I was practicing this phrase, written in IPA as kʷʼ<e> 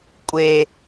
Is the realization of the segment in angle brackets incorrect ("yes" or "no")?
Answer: no